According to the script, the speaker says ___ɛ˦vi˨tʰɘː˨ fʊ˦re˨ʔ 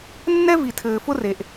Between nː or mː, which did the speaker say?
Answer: nː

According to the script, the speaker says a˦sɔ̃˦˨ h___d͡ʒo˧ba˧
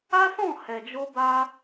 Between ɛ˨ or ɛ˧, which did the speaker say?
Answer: ɛ˨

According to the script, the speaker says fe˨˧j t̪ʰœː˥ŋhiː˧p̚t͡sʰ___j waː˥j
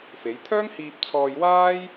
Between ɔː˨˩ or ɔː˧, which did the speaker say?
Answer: ɔː˧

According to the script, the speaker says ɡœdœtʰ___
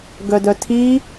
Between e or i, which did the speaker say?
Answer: i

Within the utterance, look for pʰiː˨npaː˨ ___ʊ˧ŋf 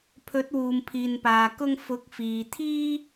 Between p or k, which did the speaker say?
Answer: k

